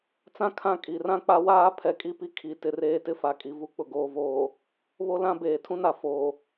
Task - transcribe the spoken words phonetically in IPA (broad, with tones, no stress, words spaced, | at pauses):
t͡sã˦kʰã˦˨ kʼi˨rã˦k͡pa˦waː˦ pʰɛ˨kʼi˦pi˦ kʰi˨ tɪ˨reː˦tɪ˦ fa˨kʼi˨ vu˦k͡pʊ˨ ɡoː˨voː˨ | βo˦lã˦beː˨ tʰũ˦na˨ foː˨